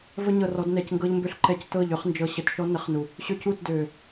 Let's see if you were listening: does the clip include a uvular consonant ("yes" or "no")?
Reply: yes